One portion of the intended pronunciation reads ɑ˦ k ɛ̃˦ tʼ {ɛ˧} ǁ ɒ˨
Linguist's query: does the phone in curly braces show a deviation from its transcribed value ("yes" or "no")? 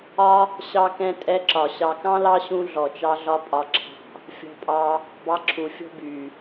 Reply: yes